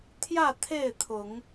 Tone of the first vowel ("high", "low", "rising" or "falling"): falling